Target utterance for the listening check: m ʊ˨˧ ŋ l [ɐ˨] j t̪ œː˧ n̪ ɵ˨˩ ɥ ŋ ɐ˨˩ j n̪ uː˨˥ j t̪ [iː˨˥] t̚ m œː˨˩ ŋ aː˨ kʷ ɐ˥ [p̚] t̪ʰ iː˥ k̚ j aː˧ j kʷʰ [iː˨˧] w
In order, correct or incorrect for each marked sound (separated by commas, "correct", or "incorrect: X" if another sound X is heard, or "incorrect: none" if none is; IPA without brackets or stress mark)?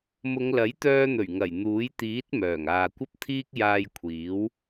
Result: incorrect: ɐ˨˥, correct, correct, incorrect: iː˨˥